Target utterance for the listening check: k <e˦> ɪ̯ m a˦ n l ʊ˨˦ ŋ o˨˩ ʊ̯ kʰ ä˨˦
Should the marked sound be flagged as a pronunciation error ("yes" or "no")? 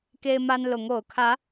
no